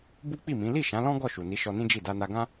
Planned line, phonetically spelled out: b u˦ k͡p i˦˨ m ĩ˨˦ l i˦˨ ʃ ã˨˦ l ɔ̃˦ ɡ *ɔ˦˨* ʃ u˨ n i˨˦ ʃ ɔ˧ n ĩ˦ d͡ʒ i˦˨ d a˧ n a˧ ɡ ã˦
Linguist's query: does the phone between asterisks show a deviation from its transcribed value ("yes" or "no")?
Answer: no